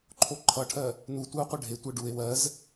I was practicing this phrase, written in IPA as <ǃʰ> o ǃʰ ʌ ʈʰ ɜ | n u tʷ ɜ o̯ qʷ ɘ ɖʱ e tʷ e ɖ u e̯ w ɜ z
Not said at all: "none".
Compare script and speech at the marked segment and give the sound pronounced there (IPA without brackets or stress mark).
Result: ǃʰ